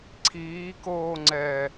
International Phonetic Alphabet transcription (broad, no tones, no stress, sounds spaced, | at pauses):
ǀʰ iː k oː ŋ͡ǀ ɛː